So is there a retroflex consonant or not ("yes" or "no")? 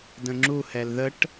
yes